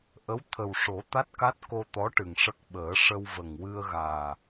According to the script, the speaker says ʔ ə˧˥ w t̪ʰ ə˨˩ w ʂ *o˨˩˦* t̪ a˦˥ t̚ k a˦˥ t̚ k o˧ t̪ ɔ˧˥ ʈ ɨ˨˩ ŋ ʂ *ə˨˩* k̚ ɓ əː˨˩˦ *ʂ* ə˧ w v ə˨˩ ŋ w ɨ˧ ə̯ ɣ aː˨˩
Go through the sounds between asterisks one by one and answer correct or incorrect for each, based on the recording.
correct, incorrect, correct

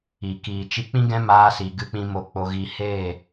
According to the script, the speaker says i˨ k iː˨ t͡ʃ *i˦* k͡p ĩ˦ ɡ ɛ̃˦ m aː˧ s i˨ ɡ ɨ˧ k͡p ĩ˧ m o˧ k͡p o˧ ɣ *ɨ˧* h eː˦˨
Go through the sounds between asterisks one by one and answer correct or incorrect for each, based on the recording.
incorrect, incorrect

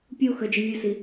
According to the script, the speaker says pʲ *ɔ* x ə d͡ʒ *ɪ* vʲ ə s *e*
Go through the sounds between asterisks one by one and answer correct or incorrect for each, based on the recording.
incorrect, correct, incorrect

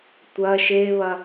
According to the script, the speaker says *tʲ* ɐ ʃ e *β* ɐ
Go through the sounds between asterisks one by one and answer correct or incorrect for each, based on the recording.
incorrect, correct

